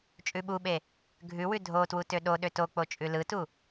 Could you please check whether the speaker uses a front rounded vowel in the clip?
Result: yes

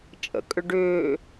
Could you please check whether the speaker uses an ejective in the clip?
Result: yes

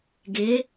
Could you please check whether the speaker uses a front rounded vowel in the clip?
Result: no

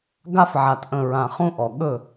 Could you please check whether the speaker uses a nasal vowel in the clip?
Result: yes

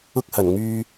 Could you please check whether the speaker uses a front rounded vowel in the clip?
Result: yes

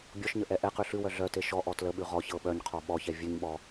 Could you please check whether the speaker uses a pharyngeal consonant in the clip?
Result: no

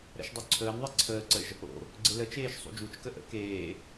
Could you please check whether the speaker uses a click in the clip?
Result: yes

